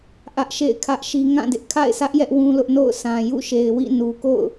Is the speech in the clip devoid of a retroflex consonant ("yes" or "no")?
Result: yes